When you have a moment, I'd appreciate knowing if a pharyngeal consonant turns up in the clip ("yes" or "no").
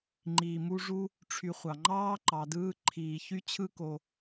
no